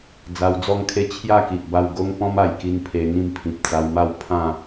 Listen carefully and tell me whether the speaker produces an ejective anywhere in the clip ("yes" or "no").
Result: no